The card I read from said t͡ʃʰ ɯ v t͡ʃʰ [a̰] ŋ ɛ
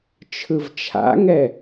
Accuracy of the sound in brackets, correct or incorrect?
correct